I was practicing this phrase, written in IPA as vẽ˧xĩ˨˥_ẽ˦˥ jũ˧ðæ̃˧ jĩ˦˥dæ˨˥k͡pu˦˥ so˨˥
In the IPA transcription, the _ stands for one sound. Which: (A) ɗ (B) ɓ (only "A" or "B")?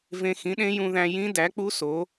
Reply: A